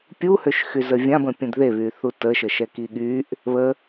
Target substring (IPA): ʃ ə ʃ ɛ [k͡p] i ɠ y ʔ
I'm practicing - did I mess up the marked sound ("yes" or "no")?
yes